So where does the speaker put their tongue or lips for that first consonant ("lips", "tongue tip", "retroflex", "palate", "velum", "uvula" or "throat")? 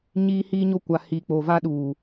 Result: palate